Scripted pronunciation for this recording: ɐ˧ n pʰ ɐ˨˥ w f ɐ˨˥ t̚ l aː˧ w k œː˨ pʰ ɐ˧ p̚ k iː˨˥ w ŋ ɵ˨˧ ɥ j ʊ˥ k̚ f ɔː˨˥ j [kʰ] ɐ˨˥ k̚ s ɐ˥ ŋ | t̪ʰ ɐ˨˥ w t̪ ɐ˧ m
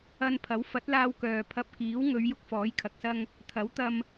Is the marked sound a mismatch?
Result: no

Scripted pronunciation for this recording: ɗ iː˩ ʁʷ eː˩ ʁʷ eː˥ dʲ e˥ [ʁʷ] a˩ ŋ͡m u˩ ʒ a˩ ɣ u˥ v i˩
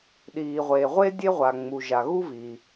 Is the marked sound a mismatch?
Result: no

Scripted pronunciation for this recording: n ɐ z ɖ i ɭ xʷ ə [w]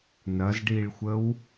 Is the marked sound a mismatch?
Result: no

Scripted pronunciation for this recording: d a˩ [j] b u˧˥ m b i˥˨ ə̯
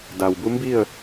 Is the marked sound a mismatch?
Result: yes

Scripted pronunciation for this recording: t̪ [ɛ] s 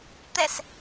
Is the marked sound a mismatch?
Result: no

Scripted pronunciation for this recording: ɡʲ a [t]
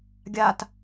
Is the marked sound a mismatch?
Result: no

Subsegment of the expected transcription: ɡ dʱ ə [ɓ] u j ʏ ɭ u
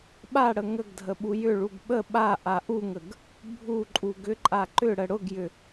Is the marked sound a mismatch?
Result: no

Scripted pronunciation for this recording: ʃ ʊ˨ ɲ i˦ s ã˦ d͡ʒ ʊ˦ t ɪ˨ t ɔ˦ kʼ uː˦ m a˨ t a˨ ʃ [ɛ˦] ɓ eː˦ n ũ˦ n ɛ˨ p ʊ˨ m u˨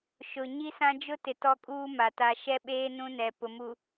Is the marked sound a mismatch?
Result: no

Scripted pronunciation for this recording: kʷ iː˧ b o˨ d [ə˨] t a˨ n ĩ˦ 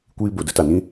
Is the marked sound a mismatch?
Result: yes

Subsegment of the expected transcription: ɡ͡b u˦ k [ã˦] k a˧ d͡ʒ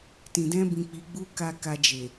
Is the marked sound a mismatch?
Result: yes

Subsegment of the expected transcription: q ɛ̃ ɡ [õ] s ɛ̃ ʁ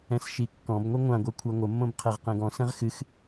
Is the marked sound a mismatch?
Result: yes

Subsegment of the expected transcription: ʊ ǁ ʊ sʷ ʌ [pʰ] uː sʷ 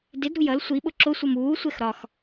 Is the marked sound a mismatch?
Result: yes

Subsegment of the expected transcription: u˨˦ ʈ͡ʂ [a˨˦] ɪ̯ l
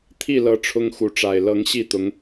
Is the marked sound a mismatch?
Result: yes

